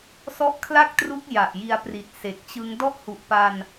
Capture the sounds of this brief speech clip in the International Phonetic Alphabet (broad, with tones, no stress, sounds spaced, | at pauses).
s ɔ˦˥ ʔ kʰ l a˥˩ k̚ t r u˦˥ k̚ j a˨˩ ʔ j i˧ a̯ p r i˨˩ t̚ s e˨˩ k̚ t͡ɕ ɯ˦˥ ŋ d ɔ˥˩ ʔ h u˨˩ ʔ p a˧ n